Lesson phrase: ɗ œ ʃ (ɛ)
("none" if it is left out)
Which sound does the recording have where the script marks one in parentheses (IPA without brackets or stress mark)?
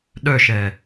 ɛː